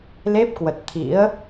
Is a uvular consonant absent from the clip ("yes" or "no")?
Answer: yes